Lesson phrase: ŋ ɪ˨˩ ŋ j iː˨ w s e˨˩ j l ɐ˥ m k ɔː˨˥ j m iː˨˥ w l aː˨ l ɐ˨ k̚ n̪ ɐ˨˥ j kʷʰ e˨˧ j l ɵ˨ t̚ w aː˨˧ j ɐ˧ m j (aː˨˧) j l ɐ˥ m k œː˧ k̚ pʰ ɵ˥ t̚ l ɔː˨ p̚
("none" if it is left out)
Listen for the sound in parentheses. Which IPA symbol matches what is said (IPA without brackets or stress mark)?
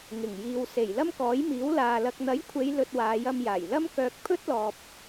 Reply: aː˨˩